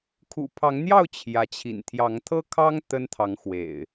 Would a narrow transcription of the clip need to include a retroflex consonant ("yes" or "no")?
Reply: no